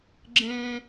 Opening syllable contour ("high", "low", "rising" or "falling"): high